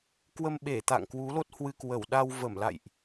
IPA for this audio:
kwə˧mɓe˧˩t̪a̰˧˨ŋ kwu˨˦lo˦˥t̚hwɨ˧kwə˧˩w ɗa˧wvə˧˩mla̰˧˨jʔ

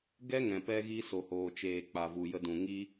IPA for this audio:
ɡɛ˦ŋɛ̃˨ pɛ˧ɣi˧ so˨hoː˨t͡ʃeː˨ k͡pa˨vu˨jə˧dũ˨ ŋi˦

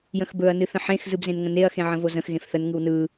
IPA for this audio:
jə̃xbɵɐ̯ nɨθə̃ħẽx zɯbzẽnŋə̃neɐ̯ xẽʕə̃vozə̃x ɣẽfθən ŋɯwnɯ

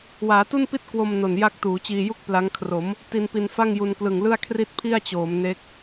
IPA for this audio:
waː˩˦tu˥˩npi˥˩t̚ kwo˧m no˨˩nja˥˩k̚ tuː˩˦t͡ɕiː˧ju˥˩k̚ pla˦˥ŋ kʰro˩˦m | ti˧npi˧nfa˥˩ŋ ju˧nklɯ˨˩ŋlɯ˥˩a̯kʰri˥˩t̚ pʰi˥˩a̯t͡ɕoː˩˦m ne˦˥k̚

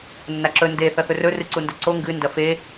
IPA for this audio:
nːaǁɵ nde θɐθɵrɵ rɨǀundɵǀo ŋɡɨ ndɐfe

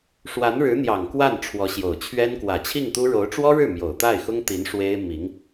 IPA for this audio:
ʂwa˧˥nɻɻ̩˧˥n̪jɑ˨˩ŋ kwa˥˩n ʈ͡ʂʰwɔ˧˥ɕjo˨˩ʊ̯t͡ɕʰɥɛ˥n kwä˨˩t͡ɕʰi˥˩ŋt̪u˥ ɻo˧˥ʊ̯ʈ͡ʂwɔ˥ɻɻ̩˥˩ mjo˨˩ʊ̯t̪a˥˩ɪ̯xʊ˥ŋt̪i˧˥n ʂwe˥ɪ̯ mi˧˥ŋ

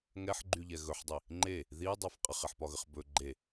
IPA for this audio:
ŋɛħɡ͡ǃyʎɛ ɣɵħdˤi | ŋ͡ǃe | ðidˤɛf qʼəχɛħpɒɣəχ bɵ ɡ͡ǃe

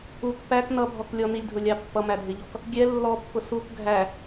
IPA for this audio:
uk pæk nʌbʱɔk lʲɔnilʲdʱʊlʲɑ pːʌmædʱɪʎɔk | ɡʲɛ lːɔpːʊ suk ɡʱæ

